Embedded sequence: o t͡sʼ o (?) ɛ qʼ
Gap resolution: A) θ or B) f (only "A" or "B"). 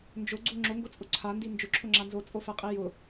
B